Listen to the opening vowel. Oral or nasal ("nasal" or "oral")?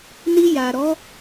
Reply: oral